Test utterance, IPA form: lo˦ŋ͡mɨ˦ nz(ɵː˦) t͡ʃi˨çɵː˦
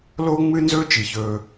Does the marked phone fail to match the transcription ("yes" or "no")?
no